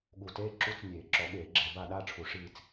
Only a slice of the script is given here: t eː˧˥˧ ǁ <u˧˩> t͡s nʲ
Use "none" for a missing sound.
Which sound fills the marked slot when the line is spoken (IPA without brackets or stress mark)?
u˧˥˧